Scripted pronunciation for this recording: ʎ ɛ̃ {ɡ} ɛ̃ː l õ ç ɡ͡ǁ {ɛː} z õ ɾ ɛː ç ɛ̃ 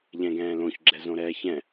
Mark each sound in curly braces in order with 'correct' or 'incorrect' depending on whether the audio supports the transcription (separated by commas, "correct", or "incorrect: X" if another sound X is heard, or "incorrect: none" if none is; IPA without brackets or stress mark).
correct, incorrect: ɛ